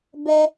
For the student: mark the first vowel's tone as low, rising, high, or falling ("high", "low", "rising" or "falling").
high